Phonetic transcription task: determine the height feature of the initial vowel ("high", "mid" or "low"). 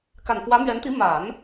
low